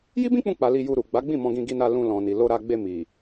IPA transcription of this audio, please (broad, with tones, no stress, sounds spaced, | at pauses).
j i˦ b ĩ˦ k͡p ũ˧ k͡p a˨ l i˧ j u˧ ɾ u˨ ɡ͡b a˨˦ ɡ͡b ĩ˦˨ m ɔ̃˧ ɡ ĩ˧ ɡ i˧ n a˧ l ũ˧ l ɔ̃˨ n i˨ l o˧ ɾ a˧ ɡ͡b e˧ m i˨